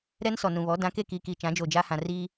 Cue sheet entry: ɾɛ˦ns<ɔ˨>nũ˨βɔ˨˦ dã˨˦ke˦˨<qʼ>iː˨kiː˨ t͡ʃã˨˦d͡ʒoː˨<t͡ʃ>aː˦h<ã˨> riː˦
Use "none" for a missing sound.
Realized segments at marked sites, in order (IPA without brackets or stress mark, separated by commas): ɔ˨, k, d͡ʒ, ã˨